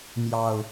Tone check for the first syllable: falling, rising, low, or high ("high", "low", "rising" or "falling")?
low